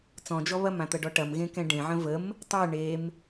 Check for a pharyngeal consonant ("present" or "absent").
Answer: present